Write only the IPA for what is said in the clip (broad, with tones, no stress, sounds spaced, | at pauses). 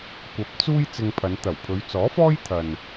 kʷ ɐ˨˥ p̚ t͡s uː˥ j t͡s ɪ˧ ŋ pʰ ɐ˨˧ n t̪ ɐ˨˩ w pʰ ɵ˨˧ ɥ t͡s ɔː˨˥ f ɔː˥ j t̪ʰ ɐ˨ n